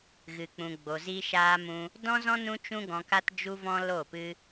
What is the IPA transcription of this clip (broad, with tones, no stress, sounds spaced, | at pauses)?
ɣ ɨ˨ k͡p ũ˨ ɡ͡b o˨ z i˧ ʃ aː˧ m ũ˧ | d ɔ̃˦ z ɔ̃˦ n ũ˦ t͡ʃ ũ˦ ɡ ɔ̃˧ k a˦ t d͡ʒ u˦ v ɔ̃˦ l o˦˨ p ɨ˦